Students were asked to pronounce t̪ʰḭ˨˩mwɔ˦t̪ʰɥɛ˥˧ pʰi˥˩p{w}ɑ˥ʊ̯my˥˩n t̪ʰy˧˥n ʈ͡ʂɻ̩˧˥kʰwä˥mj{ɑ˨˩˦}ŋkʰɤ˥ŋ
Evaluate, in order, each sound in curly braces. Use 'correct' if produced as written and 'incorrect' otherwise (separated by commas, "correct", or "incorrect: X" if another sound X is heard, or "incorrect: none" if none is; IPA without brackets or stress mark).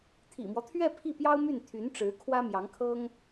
incorrect: j, incorrect: ɑ˧˥